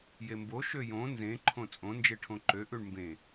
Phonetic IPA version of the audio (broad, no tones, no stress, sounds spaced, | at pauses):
j e m b o ʃ ø j õ n z ẽ ǃʰ õ t͡sʼ õ n d͡ʒ e ʈʰ õ ǃ ø ʔ ʉ ɳ m b ẽ